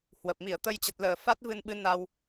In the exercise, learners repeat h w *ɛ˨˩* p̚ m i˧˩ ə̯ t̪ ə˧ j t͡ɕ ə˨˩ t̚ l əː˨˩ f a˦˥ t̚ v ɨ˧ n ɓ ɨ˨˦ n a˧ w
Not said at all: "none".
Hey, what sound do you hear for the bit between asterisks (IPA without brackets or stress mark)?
ə˨˩